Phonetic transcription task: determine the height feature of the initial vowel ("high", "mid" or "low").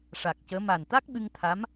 low